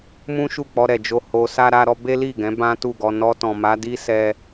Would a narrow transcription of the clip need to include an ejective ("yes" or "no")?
no